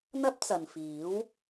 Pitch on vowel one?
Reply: high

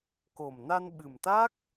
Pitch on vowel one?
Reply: low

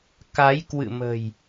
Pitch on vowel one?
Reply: rising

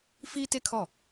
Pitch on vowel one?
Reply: high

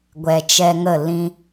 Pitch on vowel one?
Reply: low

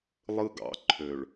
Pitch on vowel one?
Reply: high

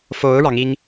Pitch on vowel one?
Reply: rising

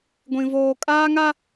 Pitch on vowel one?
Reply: high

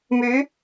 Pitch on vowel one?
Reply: rising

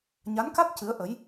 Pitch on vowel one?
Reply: rising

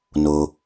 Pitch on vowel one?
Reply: low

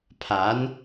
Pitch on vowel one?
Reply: rising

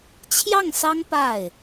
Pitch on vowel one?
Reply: falling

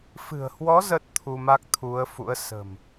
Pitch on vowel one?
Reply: low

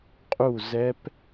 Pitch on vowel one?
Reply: falling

